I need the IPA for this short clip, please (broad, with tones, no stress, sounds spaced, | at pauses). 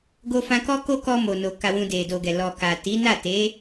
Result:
ɡ o˧ f ã˧ k ɔ˦ k o˦ k ɔ˧ m o˨ n o˨ k a˨ w ũ˨ d e˨ d o˨ ɡ ɛ˨ l ɔ˨ k a˨ t i˨˦ n a˦˨ t e˨˦